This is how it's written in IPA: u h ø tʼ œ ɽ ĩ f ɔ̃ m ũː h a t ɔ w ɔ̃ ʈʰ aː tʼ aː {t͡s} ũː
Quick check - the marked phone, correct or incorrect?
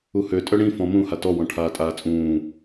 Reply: incorrect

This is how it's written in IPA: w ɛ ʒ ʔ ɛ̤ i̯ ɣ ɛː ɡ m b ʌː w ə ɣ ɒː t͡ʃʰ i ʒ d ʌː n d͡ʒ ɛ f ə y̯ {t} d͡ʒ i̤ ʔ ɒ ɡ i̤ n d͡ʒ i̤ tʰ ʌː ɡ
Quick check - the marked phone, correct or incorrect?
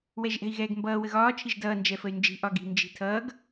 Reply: incorrect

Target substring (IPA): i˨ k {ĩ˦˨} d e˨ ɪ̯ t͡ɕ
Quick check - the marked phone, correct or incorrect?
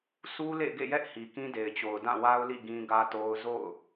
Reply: incorrect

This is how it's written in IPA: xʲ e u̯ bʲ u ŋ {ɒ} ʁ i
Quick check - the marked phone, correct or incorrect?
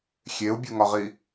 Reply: correct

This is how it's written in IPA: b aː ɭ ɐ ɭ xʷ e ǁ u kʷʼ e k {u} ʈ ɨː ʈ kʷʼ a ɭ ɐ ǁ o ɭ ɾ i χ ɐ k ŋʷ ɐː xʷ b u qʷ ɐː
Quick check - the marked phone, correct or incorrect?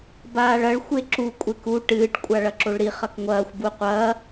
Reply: correct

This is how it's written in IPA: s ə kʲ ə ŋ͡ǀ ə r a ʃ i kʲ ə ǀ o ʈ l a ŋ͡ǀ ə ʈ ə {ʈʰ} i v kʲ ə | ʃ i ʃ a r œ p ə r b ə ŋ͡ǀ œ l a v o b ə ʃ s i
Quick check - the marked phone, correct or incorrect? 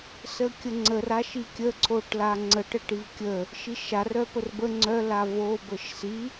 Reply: incorrect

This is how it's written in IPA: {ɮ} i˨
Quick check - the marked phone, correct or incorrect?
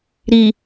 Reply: incorrect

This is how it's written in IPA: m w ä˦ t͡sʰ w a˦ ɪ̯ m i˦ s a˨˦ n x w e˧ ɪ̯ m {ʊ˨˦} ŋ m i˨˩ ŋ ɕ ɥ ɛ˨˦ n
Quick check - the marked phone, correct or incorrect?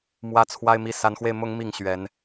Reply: correct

